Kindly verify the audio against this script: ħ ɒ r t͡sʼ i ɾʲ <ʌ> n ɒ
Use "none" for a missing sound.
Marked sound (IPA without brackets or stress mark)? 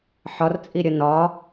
ʌ